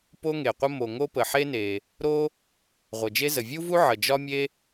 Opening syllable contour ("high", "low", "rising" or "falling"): high